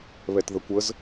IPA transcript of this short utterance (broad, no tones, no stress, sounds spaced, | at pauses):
β ɛ t ð ə kʷ ə z